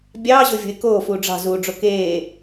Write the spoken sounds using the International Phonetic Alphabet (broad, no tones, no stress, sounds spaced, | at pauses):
bʲ ɑː ʑ o vʲ o̤ ɪ̯ k oː f uː ɖ͡ʐ ɑ̤ z uː ɖ͡ʐ o k eː